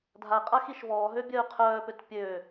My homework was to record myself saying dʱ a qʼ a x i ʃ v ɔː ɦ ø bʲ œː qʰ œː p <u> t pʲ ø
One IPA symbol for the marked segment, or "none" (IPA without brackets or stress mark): ø